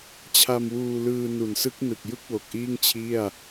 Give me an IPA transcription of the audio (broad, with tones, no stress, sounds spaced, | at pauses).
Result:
t͡ɕʰ a˧ m w uː˧ l ɯː˧ n u˨˩ n s ɯ˦˥ k̚ n ɯ˨˩ k̚ j ɯ˥˩ k̚ w o˨˩ k̚ ʔ iː˥˩ ŋ t͡ɕʰ i˥˩ a̯